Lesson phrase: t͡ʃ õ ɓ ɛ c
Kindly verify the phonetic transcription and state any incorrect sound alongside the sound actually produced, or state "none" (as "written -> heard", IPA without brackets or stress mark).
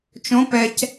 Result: ɓ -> p